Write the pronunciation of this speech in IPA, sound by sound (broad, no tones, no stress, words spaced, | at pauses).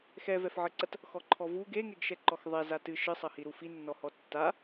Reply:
xɛvɛfʕɘǀɐt | xɔǃʰɔvu ɡeŋeɡʃɛǃɔx ðˤɛ zatɨ ʃɨsˤɐhi ɾufinːɔhɔ tːa